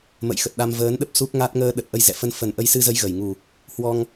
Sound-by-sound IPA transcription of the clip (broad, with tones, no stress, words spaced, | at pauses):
mə̰˧˨jxə˨˩t̚ɗa˧m vəː˨˦nɗə˦˥p̚ su˦˥k̚ŋa˦˥t̚ ŋəː˧ɗə˨˩t̚ ʔə˧jzɛ̰˧˨ fə˧n fə˨˩nʔə˧jsɨ˧zə˨˦j ɣə˧˩j ŋu˨˩ | hwɔ˧ŋ